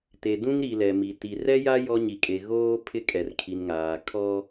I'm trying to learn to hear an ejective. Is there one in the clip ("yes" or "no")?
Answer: yes